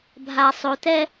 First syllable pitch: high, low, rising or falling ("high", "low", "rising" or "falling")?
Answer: low